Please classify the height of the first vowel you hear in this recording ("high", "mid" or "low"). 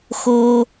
mid